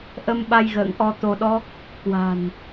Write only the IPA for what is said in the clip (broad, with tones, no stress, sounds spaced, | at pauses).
ʔ ə˧ m ɓ a˧ j ɣ ə̰ː˧˨ ŋ ʔ ɔ˧ t̪ o˧ ɗ ɔ˦˥ k̚ | k w a̤˨˩ n